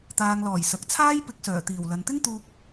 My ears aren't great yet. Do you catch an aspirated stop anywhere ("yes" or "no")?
yes